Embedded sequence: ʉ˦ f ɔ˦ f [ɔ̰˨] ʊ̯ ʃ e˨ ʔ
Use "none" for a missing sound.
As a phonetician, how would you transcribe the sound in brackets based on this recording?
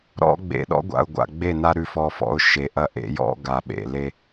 ɔ̰˦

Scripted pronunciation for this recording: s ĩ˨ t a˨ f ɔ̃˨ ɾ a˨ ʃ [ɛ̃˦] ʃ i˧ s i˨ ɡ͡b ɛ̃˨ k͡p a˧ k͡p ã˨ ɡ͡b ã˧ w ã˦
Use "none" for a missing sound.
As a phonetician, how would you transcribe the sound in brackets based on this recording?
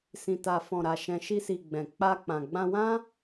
ɛ̃˨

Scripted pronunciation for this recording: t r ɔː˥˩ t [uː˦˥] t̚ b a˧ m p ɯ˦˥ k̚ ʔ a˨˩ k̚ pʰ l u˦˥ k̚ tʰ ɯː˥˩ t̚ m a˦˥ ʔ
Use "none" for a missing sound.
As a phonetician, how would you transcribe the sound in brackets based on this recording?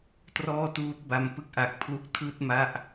uː˦˥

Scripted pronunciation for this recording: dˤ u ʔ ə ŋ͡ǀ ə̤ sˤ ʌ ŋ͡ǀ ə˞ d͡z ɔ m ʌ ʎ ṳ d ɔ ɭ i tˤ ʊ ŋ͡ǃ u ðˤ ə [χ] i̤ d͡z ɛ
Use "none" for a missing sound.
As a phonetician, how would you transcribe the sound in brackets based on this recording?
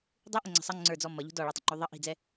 ʔ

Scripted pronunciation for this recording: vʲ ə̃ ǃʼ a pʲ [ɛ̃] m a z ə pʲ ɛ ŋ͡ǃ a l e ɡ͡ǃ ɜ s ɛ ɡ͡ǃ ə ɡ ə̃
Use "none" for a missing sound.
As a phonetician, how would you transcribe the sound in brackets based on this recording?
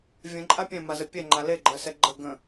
ɛ̃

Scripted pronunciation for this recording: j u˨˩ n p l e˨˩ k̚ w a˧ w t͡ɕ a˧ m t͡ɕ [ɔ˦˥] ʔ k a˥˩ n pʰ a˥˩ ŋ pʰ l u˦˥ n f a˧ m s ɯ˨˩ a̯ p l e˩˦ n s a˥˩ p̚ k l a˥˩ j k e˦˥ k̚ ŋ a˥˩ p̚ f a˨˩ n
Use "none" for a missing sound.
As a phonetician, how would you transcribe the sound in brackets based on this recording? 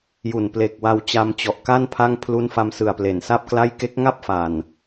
ɔ˨˩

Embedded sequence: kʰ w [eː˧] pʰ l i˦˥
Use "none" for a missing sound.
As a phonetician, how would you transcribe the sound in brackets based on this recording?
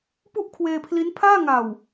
eː˧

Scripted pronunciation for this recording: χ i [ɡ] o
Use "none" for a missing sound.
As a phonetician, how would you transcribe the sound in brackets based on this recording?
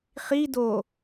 d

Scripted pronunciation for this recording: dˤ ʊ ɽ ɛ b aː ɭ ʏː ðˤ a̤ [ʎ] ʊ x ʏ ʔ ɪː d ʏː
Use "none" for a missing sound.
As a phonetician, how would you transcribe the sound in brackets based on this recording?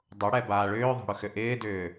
ɽ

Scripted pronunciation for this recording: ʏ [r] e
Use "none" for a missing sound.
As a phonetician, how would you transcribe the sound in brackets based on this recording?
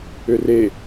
r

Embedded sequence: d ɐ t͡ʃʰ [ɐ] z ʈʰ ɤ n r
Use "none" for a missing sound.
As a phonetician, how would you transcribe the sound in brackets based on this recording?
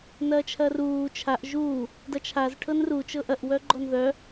a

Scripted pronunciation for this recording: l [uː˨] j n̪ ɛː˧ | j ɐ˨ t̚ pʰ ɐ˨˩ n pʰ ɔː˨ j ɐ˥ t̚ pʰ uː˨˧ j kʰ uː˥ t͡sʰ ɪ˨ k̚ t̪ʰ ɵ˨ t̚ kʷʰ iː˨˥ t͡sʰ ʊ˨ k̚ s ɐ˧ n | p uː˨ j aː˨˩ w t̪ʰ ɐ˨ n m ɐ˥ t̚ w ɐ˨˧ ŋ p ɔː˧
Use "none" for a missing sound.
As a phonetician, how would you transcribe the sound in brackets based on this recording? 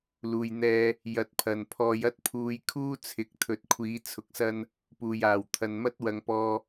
uː˨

